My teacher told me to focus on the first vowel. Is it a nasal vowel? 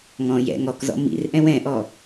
yes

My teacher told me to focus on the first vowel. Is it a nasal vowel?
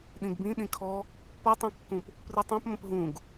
yes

